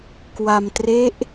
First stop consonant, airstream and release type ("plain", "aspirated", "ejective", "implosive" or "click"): plain